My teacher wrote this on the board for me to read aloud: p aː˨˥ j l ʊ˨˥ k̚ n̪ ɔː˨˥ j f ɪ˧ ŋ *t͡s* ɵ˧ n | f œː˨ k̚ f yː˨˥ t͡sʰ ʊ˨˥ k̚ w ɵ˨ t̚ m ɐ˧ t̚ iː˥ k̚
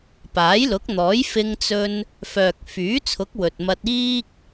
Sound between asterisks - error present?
no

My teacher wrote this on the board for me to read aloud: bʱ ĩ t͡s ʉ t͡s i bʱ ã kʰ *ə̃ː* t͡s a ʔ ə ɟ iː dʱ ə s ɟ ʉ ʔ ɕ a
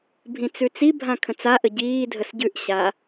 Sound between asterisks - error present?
yes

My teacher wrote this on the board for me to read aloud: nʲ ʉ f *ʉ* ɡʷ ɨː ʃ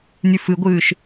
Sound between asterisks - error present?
yes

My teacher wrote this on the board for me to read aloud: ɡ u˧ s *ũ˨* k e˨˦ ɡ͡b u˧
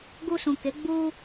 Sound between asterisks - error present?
no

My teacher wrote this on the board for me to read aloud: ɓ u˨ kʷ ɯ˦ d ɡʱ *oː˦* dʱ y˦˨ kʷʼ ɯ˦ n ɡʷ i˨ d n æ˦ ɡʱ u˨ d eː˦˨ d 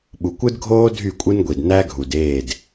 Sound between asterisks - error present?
no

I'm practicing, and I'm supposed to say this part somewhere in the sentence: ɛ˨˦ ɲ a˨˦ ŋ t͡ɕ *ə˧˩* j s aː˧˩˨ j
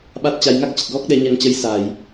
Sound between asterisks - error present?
yes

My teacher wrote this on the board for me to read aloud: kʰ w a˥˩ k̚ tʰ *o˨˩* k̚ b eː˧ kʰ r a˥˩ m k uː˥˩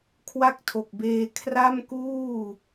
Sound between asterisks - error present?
no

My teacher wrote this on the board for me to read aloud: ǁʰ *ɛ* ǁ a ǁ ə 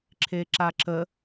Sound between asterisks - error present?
yes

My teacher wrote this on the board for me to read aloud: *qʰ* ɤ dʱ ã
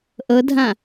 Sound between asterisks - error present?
yes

